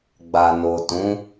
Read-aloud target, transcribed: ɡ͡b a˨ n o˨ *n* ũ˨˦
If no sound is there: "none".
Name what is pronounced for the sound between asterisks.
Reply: t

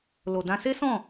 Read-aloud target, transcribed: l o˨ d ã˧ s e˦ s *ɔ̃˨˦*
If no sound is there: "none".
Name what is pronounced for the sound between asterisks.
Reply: ɔ̃˦˨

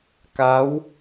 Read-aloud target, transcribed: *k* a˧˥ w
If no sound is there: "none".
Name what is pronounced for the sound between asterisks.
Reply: k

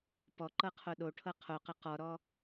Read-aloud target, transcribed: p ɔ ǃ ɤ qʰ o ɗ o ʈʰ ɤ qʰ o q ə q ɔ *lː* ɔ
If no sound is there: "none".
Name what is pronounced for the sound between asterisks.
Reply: ɾ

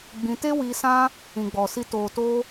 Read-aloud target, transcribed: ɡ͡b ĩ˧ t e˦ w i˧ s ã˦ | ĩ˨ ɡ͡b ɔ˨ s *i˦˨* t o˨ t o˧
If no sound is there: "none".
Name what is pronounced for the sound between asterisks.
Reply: i˧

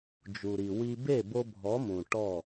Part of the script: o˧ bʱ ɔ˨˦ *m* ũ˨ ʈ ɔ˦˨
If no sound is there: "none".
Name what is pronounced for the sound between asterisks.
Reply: m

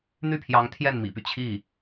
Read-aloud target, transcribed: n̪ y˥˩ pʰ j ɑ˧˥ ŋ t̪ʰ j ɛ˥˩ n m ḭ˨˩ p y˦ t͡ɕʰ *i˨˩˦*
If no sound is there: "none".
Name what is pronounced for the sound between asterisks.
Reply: i˥˩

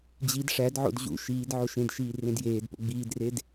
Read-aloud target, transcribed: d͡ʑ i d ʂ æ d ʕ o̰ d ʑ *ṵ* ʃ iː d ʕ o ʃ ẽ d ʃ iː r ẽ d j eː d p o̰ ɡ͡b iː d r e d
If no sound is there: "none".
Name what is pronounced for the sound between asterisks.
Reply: ṵ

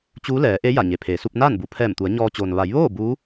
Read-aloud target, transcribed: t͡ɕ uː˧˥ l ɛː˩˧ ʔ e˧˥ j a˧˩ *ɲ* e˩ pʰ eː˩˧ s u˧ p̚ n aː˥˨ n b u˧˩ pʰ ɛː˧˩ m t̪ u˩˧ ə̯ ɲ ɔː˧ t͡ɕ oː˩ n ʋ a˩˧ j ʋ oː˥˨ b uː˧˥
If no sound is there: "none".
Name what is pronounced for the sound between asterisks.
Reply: ɲ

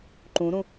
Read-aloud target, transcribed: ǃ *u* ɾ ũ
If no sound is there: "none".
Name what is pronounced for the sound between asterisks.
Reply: ũ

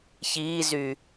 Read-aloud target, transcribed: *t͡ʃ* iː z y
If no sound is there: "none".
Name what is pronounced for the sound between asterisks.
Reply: ç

